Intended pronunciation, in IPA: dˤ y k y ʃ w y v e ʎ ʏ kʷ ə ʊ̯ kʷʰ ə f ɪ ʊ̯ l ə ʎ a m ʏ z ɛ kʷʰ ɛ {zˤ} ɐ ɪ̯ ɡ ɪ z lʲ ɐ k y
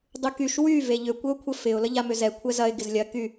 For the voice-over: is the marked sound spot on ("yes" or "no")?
no